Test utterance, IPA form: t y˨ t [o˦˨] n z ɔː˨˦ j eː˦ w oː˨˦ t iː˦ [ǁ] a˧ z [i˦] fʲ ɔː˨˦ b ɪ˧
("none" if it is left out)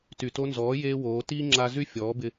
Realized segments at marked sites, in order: o˧, ŋ͡ǁ, y˦

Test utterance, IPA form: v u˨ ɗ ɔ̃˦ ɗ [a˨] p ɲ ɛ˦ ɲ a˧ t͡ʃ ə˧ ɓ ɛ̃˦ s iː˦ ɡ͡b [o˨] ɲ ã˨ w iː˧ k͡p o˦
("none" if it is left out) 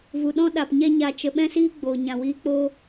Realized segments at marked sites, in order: a˨, oː˨

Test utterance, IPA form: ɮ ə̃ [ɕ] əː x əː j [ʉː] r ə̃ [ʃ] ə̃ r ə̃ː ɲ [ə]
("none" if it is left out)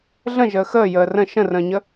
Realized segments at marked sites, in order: ʒ, əː, ʃ, ə

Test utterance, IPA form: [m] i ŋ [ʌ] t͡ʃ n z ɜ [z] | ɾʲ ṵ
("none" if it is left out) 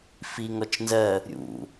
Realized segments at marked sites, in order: f, ɔ, none

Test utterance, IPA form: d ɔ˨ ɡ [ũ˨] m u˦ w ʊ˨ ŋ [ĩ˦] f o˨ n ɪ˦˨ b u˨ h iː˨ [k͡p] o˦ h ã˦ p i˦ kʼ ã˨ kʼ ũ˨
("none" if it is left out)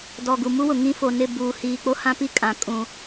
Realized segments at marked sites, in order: u˨, ĩ˦, k͡p

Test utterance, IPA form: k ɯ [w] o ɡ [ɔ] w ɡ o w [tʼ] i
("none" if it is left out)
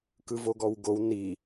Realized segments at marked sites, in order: v, ɔ, n

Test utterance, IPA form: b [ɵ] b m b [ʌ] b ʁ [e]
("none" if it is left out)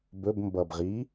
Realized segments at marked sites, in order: ɵ, ʌ, i

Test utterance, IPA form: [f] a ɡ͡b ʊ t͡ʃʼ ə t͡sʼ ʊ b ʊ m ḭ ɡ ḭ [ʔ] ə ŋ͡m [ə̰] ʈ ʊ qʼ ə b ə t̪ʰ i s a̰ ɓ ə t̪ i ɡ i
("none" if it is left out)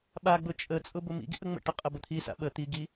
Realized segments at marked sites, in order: ɓ, ʔ, ə̰

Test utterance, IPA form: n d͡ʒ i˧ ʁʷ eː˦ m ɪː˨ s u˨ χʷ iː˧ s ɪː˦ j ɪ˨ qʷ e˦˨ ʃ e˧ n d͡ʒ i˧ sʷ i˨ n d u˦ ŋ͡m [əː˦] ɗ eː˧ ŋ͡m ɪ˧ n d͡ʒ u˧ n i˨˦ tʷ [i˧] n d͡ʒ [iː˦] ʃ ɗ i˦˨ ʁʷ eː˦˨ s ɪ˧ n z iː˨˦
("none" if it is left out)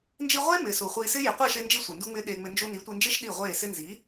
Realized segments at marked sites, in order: ɪː˦, i˧, ɪː˦

